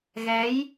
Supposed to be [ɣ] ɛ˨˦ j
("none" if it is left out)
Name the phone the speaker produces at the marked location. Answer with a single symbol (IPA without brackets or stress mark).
ɣ